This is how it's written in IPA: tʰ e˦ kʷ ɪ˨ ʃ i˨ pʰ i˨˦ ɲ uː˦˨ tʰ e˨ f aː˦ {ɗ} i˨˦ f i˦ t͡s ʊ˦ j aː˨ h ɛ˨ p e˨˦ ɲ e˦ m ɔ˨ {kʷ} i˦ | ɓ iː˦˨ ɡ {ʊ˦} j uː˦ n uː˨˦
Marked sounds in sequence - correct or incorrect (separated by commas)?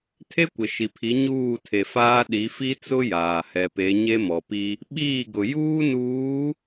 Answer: correct, incorrect, incorrect